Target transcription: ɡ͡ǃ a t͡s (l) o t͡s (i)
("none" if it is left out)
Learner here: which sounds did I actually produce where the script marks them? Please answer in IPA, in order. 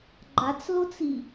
l, i

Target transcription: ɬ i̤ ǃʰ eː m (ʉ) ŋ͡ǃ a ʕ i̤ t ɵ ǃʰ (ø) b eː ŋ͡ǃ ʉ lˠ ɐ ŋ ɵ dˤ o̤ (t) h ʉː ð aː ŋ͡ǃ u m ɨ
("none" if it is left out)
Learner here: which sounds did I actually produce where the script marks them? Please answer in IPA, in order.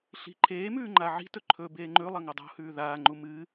ʉː, ɵ, none

